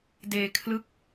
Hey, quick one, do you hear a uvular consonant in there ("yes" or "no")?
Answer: no